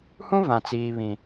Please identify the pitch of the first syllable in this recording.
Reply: high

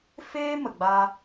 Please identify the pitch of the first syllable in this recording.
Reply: high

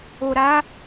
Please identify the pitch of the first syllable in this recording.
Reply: low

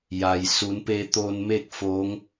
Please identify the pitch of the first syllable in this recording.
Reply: low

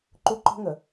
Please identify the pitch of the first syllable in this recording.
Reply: high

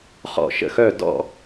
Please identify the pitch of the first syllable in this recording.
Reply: falling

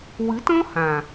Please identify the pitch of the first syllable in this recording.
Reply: rising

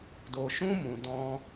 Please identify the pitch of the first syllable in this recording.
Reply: low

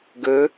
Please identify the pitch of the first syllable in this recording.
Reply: rising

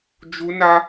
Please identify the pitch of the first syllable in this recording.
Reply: high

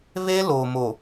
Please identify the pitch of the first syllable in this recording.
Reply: high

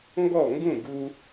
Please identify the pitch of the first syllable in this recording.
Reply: falling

